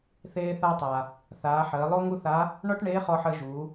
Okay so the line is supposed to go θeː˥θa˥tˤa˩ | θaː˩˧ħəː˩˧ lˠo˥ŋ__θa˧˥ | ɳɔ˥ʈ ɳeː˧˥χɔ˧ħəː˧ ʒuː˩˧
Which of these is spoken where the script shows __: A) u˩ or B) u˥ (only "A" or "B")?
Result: B